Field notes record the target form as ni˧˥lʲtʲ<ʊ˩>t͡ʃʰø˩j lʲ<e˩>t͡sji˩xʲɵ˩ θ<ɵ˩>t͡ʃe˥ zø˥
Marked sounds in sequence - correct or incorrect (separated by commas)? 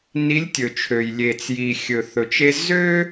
incorrect, correct, correct